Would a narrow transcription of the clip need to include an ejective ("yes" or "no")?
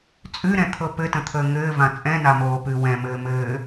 yes